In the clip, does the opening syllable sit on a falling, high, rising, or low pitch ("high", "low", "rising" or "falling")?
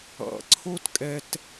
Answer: low